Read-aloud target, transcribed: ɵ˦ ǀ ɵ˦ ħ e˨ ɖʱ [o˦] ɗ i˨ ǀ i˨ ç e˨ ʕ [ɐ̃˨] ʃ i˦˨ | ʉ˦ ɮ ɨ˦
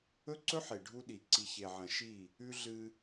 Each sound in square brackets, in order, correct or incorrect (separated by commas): incorrect, correct